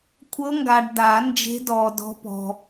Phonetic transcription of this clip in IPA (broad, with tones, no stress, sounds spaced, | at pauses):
kʷʰ ɤ˧˥ ŋ ɡ aː˨ ɖ d a˨˩˦ n d͡ʒ e̤˧˥ d ɔː˨ d ɔ̤˧˥ p ɔ̤˨